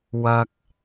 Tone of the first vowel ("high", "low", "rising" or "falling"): low